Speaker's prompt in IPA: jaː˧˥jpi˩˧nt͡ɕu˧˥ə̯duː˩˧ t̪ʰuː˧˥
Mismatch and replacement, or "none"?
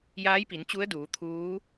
none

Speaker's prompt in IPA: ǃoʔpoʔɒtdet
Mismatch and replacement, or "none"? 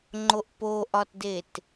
ǃ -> ŋ͡ǃ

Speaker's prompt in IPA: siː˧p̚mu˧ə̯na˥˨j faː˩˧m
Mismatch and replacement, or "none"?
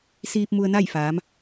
none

